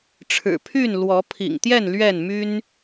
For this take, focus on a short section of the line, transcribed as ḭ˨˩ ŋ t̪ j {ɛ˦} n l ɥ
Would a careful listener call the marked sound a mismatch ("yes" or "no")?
yes